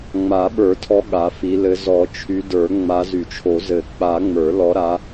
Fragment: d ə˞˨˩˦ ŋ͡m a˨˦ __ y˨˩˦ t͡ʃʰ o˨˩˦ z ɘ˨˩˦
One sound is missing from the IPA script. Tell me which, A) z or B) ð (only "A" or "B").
A